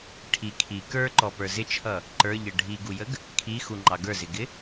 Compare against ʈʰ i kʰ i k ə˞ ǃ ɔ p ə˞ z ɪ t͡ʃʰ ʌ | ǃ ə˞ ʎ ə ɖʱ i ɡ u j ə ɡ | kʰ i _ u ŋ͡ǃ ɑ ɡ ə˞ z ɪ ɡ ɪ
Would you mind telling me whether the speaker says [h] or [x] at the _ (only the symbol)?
x